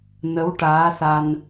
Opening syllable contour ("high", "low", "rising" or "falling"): rising